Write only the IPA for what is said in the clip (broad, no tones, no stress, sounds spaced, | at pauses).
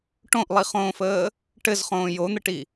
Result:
ʈ õ ʔ lˠ i χ õː f əː | ʈ ɘ z χ õː j o n̪ ə ʈ i